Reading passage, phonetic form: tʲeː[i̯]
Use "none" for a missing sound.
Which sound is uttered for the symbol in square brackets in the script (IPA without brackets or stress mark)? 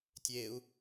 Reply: u̯